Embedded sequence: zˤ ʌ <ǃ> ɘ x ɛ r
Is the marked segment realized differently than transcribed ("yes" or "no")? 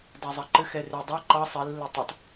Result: no